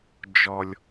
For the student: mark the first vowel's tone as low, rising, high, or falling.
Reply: low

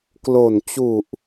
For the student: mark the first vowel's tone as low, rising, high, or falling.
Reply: low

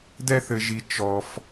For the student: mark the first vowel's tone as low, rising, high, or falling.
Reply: high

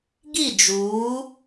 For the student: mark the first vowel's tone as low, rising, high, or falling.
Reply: falling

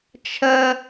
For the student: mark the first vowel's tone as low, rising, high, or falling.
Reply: high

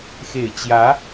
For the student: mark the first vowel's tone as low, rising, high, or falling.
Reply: low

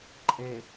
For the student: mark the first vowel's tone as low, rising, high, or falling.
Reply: low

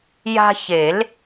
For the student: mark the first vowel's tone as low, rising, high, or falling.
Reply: high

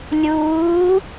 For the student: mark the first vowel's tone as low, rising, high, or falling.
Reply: rising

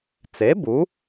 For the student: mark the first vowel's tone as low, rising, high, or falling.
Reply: rising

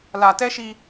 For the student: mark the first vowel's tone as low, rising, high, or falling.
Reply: low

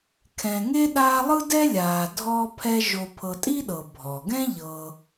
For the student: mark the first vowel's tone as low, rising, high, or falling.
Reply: low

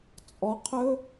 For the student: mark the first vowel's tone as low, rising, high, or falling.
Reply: rising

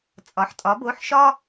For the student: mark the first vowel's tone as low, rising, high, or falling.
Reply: low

